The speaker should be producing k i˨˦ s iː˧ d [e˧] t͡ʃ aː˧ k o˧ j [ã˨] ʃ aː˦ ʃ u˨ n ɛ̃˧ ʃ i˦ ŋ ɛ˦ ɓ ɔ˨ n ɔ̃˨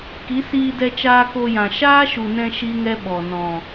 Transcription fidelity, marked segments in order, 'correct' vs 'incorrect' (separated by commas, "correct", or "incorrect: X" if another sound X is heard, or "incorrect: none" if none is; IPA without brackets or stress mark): incorrect: ɛ˧, correct